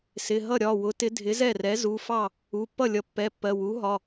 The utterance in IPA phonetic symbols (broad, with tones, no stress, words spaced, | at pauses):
sɪ˩˧˩ɦʌ˥˩ ɾʲɒ˩˧˩wʊ˩˥tɪ˩˥ dʱɪ˩˥zɛ˥˩rɛ˩˥ zu˩˧˩fɑ˥˩ | u˩˧˩pːʌ˥˩lʲʌ˩˥ pːɛ˩˧˩pːɜ˩˧˩ wu˩˥ɦɒ˩˧˩